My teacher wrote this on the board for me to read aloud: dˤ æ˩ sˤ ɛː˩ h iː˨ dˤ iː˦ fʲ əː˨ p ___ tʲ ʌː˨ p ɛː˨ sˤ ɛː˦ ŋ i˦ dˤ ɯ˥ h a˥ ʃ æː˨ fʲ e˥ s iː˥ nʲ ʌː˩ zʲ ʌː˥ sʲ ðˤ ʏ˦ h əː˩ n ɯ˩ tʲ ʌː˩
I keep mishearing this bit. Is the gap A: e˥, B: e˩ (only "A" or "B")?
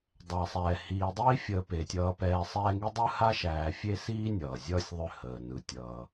B